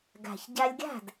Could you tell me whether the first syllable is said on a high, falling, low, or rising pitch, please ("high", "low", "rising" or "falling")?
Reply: low